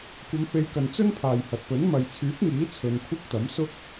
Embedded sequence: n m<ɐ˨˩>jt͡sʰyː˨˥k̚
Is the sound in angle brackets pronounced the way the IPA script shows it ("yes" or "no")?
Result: no